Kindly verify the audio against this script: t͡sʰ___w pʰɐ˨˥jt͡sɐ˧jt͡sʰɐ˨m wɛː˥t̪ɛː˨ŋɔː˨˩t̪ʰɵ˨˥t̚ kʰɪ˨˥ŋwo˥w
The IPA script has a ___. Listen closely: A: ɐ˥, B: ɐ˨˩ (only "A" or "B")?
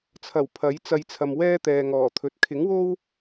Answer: B